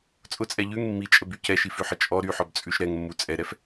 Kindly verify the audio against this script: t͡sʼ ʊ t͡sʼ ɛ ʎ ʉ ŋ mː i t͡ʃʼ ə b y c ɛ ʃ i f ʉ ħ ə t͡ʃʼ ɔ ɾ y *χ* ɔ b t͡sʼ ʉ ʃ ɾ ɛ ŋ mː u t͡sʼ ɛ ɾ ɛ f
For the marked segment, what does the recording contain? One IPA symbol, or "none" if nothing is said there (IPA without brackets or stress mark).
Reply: ħ